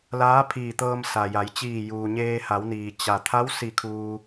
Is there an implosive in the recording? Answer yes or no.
no